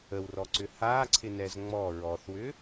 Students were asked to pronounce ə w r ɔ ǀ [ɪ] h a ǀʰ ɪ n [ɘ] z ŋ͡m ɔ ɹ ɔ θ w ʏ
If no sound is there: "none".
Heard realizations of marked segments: ʏ, ɛ

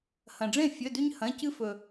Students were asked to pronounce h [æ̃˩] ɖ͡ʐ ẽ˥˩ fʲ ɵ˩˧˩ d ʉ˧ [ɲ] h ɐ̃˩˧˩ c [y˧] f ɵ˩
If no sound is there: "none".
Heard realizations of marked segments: ɐ̃˩, ɲ, ɨ˧

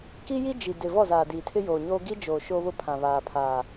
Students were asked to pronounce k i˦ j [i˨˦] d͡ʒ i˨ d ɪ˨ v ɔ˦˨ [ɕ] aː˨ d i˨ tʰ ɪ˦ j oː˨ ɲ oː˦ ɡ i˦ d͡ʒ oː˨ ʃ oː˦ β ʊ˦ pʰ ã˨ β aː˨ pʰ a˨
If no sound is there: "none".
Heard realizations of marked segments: i˦, z

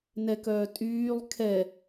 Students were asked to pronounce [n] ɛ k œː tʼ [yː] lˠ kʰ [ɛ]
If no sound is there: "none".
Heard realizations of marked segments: n, yː, ɛ

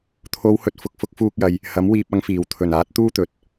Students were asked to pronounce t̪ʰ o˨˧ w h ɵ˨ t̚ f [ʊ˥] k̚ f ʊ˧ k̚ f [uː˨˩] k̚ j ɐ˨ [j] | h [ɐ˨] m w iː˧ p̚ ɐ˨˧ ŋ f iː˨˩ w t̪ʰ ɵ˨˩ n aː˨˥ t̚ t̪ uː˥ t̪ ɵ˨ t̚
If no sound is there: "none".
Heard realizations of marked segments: ʊ˨, uː˧, j, ɐ˨˥

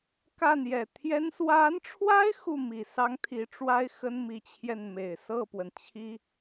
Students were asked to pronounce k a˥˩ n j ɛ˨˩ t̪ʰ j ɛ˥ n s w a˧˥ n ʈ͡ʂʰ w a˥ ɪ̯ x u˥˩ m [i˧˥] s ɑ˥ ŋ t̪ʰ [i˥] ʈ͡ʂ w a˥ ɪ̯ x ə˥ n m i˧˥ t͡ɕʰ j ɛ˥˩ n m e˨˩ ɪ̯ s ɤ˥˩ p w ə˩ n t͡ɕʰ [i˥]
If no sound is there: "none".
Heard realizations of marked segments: i˨˩, i˧˥, i˥

